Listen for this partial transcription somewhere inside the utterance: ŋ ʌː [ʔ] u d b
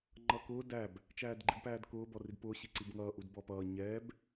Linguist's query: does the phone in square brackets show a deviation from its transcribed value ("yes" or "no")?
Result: no